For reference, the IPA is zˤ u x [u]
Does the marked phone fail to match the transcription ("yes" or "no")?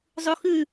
yes